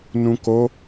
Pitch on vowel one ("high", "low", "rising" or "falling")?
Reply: low